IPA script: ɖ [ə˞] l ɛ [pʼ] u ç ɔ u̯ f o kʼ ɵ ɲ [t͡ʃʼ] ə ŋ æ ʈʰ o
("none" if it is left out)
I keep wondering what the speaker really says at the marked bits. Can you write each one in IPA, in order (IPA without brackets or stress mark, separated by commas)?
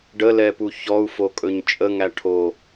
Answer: ə, p, t͡ʃʼ